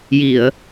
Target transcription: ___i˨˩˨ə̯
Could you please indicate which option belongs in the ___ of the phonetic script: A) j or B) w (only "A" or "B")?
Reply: A